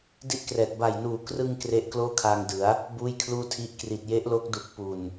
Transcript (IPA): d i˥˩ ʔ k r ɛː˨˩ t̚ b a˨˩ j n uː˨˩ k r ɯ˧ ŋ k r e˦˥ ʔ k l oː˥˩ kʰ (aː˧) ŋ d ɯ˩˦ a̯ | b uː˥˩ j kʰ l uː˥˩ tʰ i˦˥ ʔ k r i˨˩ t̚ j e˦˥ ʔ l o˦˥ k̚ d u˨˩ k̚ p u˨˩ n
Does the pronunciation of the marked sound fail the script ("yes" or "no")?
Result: no